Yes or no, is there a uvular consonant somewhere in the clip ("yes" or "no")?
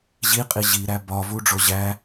yes